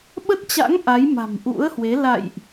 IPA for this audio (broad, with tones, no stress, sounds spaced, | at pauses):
ɓ ə˦˥ t̚ t͡ɕ a̰˧˥ ŋ ʔ a˨˦ j m a̤˨˩ m ʔ ṵ˧˥ ə̯ h w e˨˦ l a̰˧˨ j ʔ